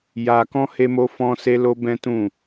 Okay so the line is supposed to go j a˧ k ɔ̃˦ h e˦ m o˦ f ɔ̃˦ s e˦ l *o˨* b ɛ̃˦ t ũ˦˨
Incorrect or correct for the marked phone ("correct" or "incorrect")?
incorrect